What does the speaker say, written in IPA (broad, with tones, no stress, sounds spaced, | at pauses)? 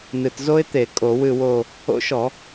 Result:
n ɨ˩ t z o˦˥ ɪ̯ t̪ e˧˩˧ kʼ o˧˩˧ w ɨ˦˨ w o˦˨ | o̰˦˥ ʃ ɔ˧˩˧